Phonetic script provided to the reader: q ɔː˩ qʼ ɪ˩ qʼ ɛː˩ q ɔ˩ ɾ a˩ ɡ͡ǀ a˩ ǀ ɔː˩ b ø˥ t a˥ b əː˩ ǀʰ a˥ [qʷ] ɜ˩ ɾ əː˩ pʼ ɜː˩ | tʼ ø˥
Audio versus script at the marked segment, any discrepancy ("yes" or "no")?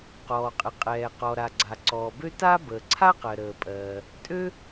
yes